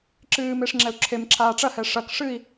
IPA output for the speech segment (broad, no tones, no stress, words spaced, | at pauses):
ǁɨːmeʂ ŋ͡ǁɛu̯ǁʰemǁʰaː ʈ͡ʂɐhɛ ʂɐk ʂɨi̯